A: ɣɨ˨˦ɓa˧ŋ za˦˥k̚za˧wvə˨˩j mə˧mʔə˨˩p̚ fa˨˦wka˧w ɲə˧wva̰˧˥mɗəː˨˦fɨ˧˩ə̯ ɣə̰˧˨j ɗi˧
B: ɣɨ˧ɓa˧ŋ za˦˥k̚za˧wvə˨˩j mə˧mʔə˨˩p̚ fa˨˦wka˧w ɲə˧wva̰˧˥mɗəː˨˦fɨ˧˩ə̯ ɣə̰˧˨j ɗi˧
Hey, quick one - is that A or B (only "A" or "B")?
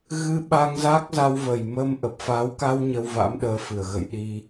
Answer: B